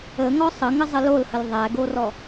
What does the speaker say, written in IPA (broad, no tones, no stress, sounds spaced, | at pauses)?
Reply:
ə ŋ ɔ sˤ ə ŋ ə zˤ ə l o l h ə l ðˤ æ ɡ o r ɔ